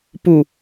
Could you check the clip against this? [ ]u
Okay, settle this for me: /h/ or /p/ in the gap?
p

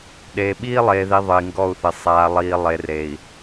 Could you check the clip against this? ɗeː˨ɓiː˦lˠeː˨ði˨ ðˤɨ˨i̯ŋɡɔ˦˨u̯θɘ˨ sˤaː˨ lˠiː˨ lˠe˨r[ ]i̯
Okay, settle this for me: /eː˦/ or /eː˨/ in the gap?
eː˨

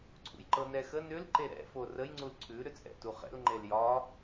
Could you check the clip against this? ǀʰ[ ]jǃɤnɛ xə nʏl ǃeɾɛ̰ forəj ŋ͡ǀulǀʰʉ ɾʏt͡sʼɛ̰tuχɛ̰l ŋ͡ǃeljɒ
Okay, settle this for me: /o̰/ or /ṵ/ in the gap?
ṵ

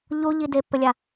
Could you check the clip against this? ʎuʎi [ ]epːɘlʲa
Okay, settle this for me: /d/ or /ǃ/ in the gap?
d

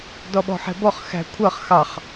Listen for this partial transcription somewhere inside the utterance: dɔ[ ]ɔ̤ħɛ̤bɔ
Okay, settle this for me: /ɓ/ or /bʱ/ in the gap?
ɓ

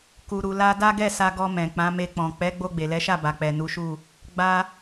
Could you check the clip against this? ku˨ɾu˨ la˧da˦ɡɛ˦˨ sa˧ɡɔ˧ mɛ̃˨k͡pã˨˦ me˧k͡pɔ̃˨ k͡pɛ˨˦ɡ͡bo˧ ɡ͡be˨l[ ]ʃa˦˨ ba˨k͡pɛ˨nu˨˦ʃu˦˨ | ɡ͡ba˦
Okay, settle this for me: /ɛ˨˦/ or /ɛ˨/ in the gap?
ɛ˨˦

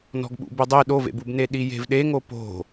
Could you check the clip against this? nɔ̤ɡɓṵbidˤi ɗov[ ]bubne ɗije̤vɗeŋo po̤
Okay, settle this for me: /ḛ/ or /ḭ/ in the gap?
ḛ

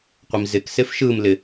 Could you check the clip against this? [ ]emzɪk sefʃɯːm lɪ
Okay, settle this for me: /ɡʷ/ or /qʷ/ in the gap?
qʷ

